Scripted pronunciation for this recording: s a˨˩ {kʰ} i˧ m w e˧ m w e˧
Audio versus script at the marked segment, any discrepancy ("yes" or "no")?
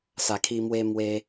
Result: no